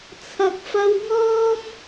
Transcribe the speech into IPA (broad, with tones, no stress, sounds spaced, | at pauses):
t͡sʰ ɐ˨ k̚ f ɐ˧ w ŋ ɔː˥ m